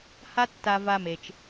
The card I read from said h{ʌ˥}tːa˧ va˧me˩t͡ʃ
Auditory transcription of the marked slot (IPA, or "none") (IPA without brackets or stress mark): a˥